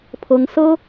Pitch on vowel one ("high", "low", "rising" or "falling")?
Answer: high